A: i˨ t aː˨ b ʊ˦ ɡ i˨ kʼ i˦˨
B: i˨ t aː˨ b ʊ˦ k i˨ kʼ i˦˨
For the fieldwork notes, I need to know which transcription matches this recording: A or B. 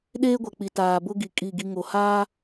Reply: A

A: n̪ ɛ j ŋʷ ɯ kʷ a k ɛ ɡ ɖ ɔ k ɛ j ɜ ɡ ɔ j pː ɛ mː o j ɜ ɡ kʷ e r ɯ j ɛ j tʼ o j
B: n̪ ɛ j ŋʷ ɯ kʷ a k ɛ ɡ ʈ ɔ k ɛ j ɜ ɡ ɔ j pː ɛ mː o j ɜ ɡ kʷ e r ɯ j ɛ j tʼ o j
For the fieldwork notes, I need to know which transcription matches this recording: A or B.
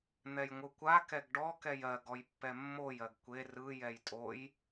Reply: A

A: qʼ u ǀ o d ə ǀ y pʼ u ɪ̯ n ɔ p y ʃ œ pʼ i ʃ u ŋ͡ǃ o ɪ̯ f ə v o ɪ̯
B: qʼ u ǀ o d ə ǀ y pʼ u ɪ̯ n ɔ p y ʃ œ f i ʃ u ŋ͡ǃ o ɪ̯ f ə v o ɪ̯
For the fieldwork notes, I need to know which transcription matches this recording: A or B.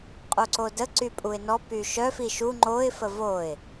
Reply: B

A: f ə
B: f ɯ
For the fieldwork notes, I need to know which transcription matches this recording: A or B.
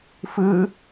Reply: B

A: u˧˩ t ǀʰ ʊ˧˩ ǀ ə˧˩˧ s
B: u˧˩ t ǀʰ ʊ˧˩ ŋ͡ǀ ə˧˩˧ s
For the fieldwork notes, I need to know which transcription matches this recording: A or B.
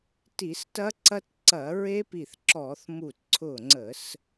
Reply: B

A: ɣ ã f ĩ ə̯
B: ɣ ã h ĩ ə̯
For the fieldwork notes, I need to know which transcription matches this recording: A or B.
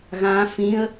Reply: A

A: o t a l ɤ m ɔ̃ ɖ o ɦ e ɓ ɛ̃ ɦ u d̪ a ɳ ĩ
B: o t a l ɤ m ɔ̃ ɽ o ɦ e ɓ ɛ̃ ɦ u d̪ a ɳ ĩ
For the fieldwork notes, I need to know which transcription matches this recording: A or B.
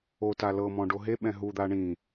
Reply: A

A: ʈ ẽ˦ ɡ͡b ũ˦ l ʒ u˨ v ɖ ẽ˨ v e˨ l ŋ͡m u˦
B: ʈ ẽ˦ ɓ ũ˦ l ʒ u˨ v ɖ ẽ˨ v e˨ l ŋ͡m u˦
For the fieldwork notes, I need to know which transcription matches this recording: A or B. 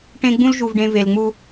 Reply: A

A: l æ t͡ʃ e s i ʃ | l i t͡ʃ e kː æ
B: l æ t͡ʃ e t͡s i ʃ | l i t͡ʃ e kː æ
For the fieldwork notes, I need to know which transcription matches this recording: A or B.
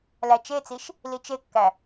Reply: B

